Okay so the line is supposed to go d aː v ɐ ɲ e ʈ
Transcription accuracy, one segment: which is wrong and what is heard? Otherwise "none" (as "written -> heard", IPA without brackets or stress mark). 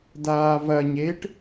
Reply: none